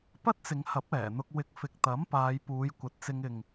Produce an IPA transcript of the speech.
p ɐ˥ t̚ t͡s ɪ˨˧ ŋ h ɐ˨˥ p̚ ɛː˨˩ n̪ ʊ˧ k̚ w ɪ˧ k̚ f ɪ˨ k̚ t̪ ɐ˨˥ m p aː˨˧ j p uː˨˧ j kʷ ɐ˨ t̚ t͡s ɪ˧ ŋ ɪ˨ ŋ

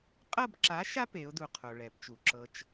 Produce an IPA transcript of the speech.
qʼ ɤ˦˨ b ǁ a˨˥ ʃ a˦ p e˨˥ ʊ̯ d u˨ qʰ o˨ ɭ ɛ˨˩˦ p t͡ʃ u˨ ǁ ɤ˦ t͡ʃ

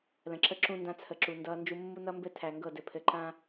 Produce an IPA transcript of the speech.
l ə̃˨ ǁ ə˦ ǁ ũ˦ n d ã˦ t͡sʰ ə˨ ǁ u˨ n d ʌː˦ n d͡ʒ u˦ mː u˦ n ʌ˦ m b ɘ˦ tʰ æ˨ ŋ ɡ ɤ˦˨ d ɘ˨ pʰ ɘ˨ ǃ ã˦

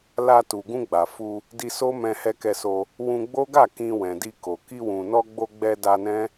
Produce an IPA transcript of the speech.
l a˧ t u˨ ɡ ũ˧ ɡ͡b a˨ f u˧ | d i˧ s o˦ m ɛ̃˧ h ɛ˧ k ɛ˧ s o˧ | w ũ˧ ɡ͡b o˦ ɡ a˦˨ k ĩ˧ w ɛ̃˨ d i˧ k o˨ k i˧ w ũ˨ n ɔ˧ ɡ͡b o˧ ɡ͡b ɛ˧ d a˧ n ɛ̃˦

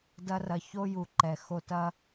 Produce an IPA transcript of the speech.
d ɐ˧ r ɐ˨ ç o˦ j u˨ ǃ ɛ˨ x o˧ t ɐ˦

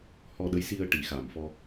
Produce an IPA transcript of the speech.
h ɔ˧ ɗ ə˧˥ j s i˧ ə̯ ʈ i˨˩˨ x a˨˩ m f ɔ˧

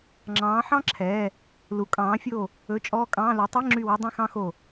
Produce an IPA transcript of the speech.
ŋ͡ǁ ɑ̃ː˨˦ ħ ɑ̃˥ ǁʰ ɛ˧˥˧ | l u˨˦ kʼ ɑ̃ː˨˦ fʲ o˦˨ | ɵ˧˥˧ t͡ʃʼ ɔː˥ kʼ ɑ̃ː˧˥˧ l u˨˦ tˤ e˧˥˧ ŋ͡ǁ y˦˨ w ɑ˥ dˤ ĩ˧˥˧ x ɑ̃˥ x o˦˨

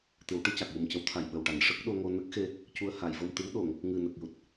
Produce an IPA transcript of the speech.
t̪ ɨ˨˩˦ w ʈ ɨ˧ c a˨˩ k̚ j u˨˩ m c ə˧˥ w t̪ʰ a˨˩ j ɓ ə˨˩ w ʈ a˨˩˨ n ʂ ə˦˥ k̚ ɗ o˧ ŋ o˧ n ə˦˥ k̚ x e˧ | c u˧ ə̯ h a˨˩˨ j v ə˧ m t̪ ɨ˧˥ w ɗ o˨˩˨ ŋ | ŋ ɨ˨˩ n ə˨˩ k̚ j u˨˩ t̚

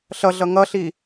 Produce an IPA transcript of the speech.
ɬ ʌ ɮ ʌ ŋ ʌ ɬ i

